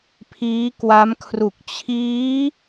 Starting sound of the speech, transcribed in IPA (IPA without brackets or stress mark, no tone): pʰ